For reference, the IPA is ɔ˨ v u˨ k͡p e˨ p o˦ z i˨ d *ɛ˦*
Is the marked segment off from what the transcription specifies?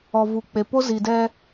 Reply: no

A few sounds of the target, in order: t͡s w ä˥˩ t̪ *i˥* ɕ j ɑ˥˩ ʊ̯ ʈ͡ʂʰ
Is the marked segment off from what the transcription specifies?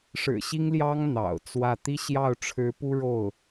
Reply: no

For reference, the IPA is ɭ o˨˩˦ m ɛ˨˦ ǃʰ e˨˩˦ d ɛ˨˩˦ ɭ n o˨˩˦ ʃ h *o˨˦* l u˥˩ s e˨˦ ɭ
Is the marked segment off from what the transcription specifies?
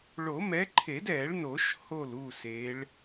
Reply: yes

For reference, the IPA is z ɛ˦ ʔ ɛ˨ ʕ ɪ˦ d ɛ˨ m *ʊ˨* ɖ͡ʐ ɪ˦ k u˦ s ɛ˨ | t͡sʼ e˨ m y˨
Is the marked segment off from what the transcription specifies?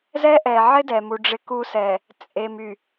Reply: yes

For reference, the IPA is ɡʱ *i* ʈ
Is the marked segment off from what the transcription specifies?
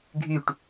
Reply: yes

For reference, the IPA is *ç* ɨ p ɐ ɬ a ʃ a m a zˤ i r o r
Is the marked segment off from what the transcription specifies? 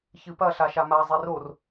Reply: no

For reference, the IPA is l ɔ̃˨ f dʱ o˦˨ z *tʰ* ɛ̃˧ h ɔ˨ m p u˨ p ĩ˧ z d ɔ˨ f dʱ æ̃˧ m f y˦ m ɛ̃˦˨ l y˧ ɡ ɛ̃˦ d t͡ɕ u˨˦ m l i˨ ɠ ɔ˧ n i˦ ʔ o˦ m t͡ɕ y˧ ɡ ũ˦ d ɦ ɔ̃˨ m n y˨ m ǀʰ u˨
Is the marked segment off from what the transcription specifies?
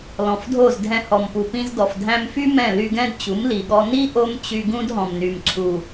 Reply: yes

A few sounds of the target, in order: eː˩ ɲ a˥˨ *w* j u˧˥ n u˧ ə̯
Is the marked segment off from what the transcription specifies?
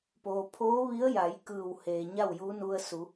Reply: no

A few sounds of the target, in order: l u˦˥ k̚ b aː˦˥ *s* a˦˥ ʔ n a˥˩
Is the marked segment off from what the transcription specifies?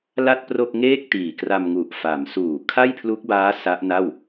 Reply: no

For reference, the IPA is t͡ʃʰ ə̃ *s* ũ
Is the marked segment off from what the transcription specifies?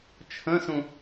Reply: no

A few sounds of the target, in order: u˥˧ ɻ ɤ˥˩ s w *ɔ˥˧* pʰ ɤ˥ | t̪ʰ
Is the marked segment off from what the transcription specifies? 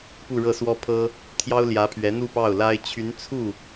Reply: yes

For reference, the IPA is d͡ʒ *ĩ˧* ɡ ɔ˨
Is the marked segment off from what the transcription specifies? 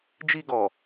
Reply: yes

